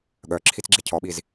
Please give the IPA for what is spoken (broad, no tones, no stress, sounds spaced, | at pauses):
ɠ œ ǁʰ i t͡s ɡ͡ǁ e cʰ ɔ ɓ i z